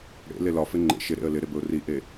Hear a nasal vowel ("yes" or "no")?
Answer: no